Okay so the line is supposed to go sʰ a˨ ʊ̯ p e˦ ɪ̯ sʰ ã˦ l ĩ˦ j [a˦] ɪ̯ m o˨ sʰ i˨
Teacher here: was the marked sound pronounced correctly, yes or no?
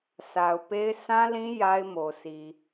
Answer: yes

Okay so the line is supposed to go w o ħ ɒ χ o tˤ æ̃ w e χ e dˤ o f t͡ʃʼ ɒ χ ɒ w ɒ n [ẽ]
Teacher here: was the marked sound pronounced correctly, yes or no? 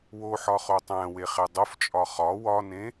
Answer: yes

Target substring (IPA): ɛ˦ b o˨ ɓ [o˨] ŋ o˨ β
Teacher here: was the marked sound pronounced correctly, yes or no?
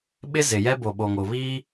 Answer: yes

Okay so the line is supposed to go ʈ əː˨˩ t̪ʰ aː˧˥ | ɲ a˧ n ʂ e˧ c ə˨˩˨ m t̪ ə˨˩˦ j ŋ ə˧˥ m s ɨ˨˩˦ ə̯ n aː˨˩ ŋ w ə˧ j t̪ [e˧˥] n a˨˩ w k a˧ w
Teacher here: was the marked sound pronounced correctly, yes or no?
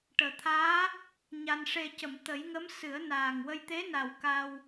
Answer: yes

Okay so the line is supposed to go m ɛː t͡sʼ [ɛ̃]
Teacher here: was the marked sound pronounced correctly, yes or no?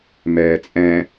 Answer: yes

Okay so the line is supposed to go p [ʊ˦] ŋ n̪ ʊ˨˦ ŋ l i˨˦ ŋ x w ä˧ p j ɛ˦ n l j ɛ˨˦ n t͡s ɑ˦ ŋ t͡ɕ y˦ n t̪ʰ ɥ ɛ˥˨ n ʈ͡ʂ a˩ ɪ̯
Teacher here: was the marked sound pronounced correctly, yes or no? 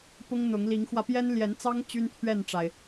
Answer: yes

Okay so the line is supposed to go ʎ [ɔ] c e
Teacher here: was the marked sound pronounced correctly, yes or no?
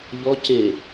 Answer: yes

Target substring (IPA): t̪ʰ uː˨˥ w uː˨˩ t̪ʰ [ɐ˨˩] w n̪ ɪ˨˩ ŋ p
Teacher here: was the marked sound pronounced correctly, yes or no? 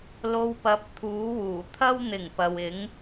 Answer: no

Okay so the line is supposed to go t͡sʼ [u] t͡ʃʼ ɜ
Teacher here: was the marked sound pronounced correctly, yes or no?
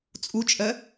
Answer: yes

